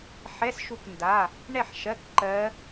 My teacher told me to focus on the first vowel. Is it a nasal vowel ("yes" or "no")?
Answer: no